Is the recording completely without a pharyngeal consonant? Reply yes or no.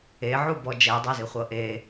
no